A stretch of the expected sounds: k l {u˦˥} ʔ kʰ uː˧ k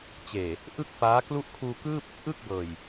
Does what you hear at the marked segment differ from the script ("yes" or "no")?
no